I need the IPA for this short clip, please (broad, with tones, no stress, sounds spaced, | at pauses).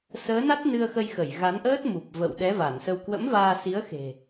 s əː˨˦ n a˦˥ t̚ n ɨ˧ ə̯ x ə˧ j x ə˧˩ j ɣ a˨˦ n ʔ əː˦˥ t̚ m u˨˩ p̚ v ə̰˧˨ w ɗ ɛ˨˦ v a˧˩ n s ə˧ w k w ə̰˧˥ m v aː˧ s i˨˦ ə̯ x e̤˨˩